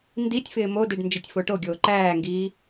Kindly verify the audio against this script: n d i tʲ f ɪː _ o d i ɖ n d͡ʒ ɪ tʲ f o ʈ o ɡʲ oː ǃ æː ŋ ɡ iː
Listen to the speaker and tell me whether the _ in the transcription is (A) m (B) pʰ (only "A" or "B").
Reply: A